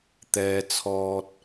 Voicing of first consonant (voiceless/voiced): voiceless